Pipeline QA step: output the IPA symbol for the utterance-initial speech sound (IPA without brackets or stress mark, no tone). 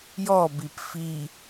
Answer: j